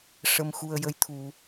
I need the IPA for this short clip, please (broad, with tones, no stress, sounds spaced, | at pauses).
ʂ ə˧ m x u˧ ə̯ j ə˧˥ j t̪ʰ u˧